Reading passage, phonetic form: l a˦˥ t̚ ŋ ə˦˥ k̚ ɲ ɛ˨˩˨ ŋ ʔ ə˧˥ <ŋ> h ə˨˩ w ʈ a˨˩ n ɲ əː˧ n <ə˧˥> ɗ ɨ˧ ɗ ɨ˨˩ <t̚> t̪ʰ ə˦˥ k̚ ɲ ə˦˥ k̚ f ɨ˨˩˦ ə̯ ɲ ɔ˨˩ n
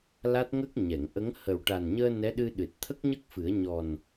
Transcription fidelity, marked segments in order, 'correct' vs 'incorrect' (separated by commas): correct, incorrect, correct